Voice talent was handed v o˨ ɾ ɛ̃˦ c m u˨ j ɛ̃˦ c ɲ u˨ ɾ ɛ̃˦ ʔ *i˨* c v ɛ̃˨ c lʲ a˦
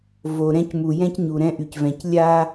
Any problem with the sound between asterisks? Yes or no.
yes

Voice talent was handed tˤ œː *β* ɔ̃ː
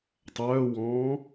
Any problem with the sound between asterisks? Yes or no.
yes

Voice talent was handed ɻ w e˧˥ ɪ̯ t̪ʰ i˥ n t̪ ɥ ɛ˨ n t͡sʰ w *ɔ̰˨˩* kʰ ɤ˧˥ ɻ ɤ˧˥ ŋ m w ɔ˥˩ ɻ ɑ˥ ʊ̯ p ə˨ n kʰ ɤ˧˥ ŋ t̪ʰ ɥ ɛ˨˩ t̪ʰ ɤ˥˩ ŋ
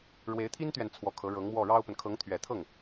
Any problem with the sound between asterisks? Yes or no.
yes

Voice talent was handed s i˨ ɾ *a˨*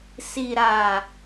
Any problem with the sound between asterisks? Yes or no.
no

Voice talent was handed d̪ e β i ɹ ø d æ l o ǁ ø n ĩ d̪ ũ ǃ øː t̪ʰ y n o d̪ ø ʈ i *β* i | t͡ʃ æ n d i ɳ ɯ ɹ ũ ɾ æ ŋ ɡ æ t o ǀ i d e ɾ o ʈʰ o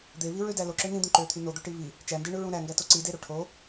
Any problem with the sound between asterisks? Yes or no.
no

